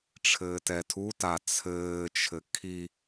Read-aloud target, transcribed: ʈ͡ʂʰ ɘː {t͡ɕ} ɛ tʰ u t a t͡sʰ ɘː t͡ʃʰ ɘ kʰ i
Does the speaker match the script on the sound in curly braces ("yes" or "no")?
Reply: no